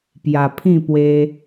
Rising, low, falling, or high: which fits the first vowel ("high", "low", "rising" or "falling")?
low